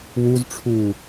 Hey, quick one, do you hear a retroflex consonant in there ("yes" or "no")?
yes